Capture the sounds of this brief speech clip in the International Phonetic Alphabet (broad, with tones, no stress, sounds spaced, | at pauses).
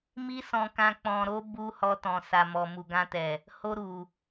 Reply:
m i˦ s ɔ̃˧ k ã˧ k͡p ɔ̃˨ ɾ o˨˦ b u˧ h ɔ˧ t ɔ̃˨ s a˨ m ɔ˨ m u˨ ɡ ã˧ t ɛ˨ | h o˧ ɾ u˨